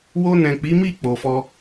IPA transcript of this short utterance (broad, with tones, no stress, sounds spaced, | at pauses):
w o˧ n ɛ̃˨ k͡p i˨˦ m i˦˨ k͡p o˨ f ɔ˧